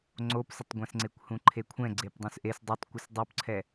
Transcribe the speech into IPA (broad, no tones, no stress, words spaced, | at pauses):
ŋ͡ǀopsətˤɡʷɛ̃sŋ͡ǀekʷ hũǃʰekʷʰɛ̃ ɡ͡ǀepdˤũsʔes dˤɛtˤkʷəs dˤupǀʰɛ